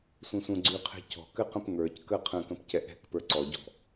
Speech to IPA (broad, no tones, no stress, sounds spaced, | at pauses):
sʷ ɛ̃ sʷ ə̃ ɡ͡ǀ y qʰ ɛ̤ c ɔ̤ k ɘ q ə̃ p ŋ ə˞ c k ə qʰ ə̃ k ə̃ p c ɛ ʔ ɛ̤ k p ə˞ ǀ ɔ ɟ ɔ̤